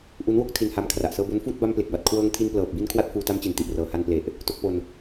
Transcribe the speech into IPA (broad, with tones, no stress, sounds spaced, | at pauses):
ʔ u˦˥ n w o˦˥ k̚ tʰ i˧ n h a˧ m kʰ r a˨˩ ʔ s ɤː˧ b o˦˥ n f uː˥˩ t̚ b a˧ m p l e˨˩ k̚ b a˨˩ t̚ kʰ w ɤː˧ ŋ tʰ i˧ n p l ɤː˨˩ p̚ b i˧ n kʰ w a˥˩ t̚ f uː˧ t a˦˥ m t͡ɕ i˩˦ n t i˨˩ ʔ r ɤː˨˩ h a˧ n p l e˨˩ ʔ | t o˥˩ k̚ p o˧ n